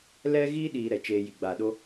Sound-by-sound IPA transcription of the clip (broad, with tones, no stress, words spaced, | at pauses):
lɛ˦ɣi˦ ɗiː˧ɾɛ˨t͡ʃeː˧ji˨ ɡ͡ba˨ɗo˦